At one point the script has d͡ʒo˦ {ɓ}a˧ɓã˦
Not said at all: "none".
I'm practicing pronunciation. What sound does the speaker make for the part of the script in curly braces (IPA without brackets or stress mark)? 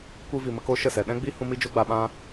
ɡ͡b